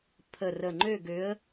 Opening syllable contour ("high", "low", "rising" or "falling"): low